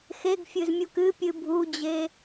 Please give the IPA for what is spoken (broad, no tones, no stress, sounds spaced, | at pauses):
x e ɡ fʲ ɨ z mʲ u k ɨ pʲ ɨ bʱ u d͡ʑ e